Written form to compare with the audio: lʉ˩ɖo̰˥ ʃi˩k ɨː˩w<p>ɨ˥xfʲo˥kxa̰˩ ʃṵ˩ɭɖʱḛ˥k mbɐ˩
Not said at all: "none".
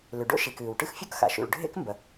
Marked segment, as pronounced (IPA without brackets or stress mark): ʈ